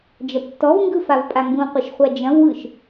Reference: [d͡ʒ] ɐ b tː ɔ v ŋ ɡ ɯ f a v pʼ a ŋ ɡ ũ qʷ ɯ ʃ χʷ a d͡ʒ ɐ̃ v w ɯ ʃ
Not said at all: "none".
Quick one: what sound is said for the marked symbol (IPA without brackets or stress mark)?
d͡ʒ